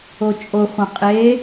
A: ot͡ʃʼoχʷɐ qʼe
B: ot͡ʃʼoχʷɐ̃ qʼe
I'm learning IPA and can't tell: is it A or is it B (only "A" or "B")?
B